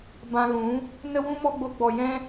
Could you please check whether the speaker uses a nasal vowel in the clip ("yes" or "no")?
yes